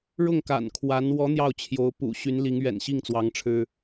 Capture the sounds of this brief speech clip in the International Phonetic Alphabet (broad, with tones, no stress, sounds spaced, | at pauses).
ɻ ʊ˥˩ ŋ k a̰˨˩ n kʰ w a˧˥ n w ɔ˧˥ n̪ j ɑ˥˩ ʊ̯ t͡ɕʰ j o˧˥ ʊ̯ p ṵ˨˩ ɕ y˧˥ n l i˧˥ ŋ ɥ ɛ̰˨˩ n ɕ i˥˩ ŋ t͡s w ɑ˧˥ ŋ ʈ͡ʂʰ ɻ̩˥